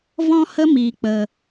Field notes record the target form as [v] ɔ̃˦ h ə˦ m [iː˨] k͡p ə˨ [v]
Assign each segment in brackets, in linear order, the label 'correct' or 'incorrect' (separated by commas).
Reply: correct, correct, incorrect